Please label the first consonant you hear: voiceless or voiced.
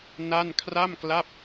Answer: voiced